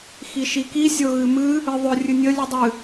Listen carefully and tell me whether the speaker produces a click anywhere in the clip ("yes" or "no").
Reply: no